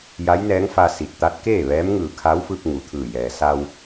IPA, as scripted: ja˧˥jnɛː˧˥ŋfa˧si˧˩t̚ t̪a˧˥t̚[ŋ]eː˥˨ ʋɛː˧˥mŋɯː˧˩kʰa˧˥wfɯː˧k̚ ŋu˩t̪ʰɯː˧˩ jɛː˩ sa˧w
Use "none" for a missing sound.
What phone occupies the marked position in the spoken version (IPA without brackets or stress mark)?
k